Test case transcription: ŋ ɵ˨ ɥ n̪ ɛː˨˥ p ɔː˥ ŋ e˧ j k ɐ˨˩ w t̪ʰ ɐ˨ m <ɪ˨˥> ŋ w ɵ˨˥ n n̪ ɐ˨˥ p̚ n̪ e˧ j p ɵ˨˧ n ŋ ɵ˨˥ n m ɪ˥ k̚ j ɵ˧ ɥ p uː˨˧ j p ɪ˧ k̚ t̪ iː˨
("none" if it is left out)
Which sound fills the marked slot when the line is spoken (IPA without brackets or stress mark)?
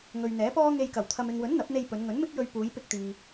ɪ˨